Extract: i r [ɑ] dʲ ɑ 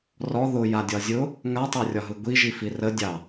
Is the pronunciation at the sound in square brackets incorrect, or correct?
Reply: incorrect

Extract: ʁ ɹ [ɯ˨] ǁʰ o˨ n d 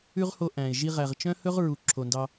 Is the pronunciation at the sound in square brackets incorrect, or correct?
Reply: incorrect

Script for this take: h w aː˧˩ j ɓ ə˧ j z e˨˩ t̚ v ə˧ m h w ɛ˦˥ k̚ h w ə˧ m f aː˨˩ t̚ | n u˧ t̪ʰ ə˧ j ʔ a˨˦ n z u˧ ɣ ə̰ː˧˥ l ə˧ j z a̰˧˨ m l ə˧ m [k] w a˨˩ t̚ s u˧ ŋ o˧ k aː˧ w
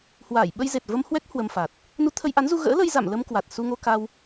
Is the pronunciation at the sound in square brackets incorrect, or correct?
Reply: correct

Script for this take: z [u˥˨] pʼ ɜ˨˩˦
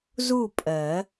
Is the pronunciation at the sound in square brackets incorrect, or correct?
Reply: correct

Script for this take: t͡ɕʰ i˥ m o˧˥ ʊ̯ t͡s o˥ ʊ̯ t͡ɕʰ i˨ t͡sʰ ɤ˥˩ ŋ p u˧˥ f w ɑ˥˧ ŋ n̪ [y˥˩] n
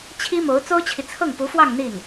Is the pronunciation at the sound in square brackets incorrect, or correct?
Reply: incorrect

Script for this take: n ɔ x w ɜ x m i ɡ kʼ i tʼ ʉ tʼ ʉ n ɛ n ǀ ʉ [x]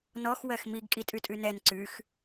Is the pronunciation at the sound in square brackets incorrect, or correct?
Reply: correct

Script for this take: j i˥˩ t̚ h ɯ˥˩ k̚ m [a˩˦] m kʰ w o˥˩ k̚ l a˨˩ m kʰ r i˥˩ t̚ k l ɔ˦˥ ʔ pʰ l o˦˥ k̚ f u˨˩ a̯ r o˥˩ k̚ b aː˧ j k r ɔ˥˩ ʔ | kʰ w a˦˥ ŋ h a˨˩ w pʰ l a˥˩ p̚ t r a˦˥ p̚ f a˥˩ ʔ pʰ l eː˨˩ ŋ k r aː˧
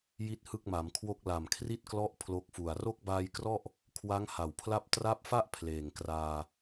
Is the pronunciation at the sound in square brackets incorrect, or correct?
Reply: correct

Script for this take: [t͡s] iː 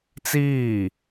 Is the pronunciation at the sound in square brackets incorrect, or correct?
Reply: correct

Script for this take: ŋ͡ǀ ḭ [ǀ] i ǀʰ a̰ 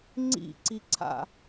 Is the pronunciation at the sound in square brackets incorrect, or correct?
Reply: correct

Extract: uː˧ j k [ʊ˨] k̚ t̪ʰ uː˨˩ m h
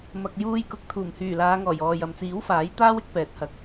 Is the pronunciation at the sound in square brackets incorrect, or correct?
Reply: correct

